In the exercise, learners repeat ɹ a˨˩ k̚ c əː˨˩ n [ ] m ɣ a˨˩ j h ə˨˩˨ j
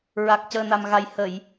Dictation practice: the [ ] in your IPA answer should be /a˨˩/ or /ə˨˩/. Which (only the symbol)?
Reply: a˨˩